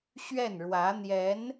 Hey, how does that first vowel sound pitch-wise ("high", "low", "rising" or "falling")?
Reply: falling